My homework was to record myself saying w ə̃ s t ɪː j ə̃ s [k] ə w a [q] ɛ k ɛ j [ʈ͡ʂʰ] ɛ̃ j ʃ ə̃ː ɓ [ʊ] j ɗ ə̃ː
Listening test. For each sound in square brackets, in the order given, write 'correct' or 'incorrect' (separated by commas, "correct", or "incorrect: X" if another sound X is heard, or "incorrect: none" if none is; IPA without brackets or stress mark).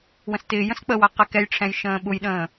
incorrect: k͡p, correct, correct, correct